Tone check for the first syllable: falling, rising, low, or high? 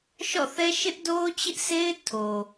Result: falling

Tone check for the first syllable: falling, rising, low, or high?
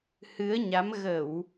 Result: rising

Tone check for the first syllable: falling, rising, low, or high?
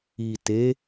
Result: low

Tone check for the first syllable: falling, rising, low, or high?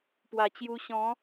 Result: low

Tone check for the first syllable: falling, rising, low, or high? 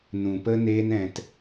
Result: low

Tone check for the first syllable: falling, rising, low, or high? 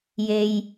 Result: low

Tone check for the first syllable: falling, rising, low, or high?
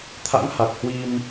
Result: rising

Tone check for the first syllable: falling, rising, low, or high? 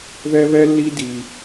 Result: high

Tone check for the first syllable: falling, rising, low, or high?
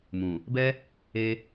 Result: low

